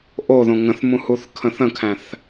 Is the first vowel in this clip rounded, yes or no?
yes